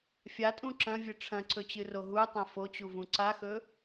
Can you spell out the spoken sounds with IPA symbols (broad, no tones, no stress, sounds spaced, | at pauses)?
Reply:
fʲ a tʼ ũ ǁ ɐ̃ vʲ ɨ ʈ͡ʂʰ ɐ̃ ǀ ɵ t͡ɕ ɨ r o ɦ u tˤ ɐ̃ f o t͡ɕ u v ũ ǀ a x ɵ